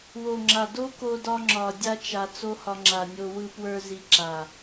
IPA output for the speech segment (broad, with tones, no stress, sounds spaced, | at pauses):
w o˨ ŋ͡ǁ a˨ d o˦ k o˧ d ɒ˧ ŋ͡ǁ ɒ˨ dʲ a˧ t͡ʃ a˨ t͡s o˦ h ɒ˧ ŋ͡ǁ a˨ nʲ o˧ w ɯ˧ p w ə˞˧ z i˧ ǁ a˨